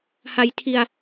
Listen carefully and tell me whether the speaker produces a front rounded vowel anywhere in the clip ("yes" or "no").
no